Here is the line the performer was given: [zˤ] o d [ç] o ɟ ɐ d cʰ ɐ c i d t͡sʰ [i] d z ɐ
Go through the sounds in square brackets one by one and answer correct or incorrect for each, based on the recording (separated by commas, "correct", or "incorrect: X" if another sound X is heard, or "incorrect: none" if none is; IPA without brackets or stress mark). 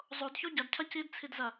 correct, correct, correct